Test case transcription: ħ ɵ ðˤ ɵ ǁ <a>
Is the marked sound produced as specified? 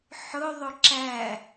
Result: no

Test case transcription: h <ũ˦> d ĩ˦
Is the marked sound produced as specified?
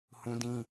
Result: yes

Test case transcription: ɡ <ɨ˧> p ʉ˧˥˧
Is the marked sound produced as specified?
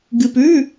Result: yes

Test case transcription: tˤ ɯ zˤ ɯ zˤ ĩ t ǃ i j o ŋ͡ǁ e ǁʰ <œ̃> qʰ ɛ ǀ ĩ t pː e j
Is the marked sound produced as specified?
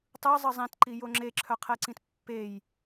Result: no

